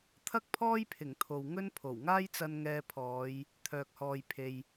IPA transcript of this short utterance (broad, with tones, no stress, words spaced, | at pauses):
t̪ʰɐ˥k̚pʰɔː˥jpʰɪ˨˩ŋ t̪ʰo˨wŋɵ˥n pʰo˨˩wŋaː˥jt͡sɐ˧n ŋɛː˧pʰɔː˨˧j | t̪ʰœː˨k̚hɔː˨jpʰe˨j